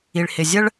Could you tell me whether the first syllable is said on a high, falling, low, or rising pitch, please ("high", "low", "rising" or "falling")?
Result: low